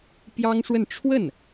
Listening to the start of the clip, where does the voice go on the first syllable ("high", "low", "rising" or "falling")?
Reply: high